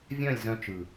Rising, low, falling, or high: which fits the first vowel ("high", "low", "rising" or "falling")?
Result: falling